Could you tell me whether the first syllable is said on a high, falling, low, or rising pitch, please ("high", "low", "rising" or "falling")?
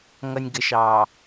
low